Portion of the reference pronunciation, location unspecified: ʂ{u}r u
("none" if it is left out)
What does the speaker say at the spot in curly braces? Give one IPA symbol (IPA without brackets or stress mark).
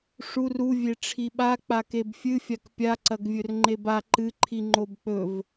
u